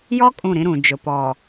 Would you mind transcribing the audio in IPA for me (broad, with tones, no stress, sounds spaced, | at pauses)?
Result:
j ɔ˦ kʼ ũ˦˨ ɾ ĩ˦ ɾ ũ˨ d͡ʒ ʊ˨ p ɔ˨